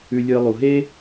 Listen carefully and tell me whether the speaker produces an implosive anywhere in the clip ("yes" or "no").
no